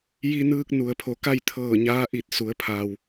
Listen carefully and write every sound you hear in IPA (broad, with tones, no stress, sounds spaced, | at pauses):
j i˧ n ɯː˧ k̚ n u˩ ə̯ pʰ o˩˧ k a˥˨ j t̪ʰ ɤː˧˩ ɲ aː˧˥ ʔ i˧˩ t̚ s u˩˧ ə̯ pʰ a˩ w